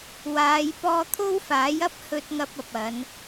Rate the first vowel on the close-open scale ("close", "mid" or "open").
open